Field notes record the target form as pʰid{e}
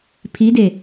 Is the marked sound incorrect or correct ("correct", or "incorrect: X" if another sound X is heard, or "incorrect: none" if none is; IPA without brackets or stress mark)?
correct